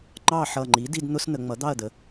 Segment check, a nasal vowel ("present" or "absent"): absent